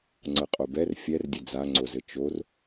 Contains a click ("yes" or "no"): yes